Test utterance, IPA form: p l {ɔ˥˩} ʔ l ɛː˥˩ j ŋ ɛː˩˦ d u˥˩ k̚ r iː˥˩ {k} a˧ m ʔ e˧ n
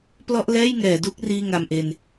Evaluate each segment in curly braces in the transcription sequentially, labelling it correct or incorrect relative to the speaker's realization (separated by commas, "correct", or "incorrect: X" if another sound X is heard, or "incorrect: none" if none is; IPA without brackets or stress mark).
correct, incorrect: ŋ